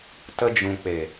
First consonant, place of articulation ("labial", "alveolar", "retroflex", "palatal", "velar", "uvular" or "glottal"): alveolar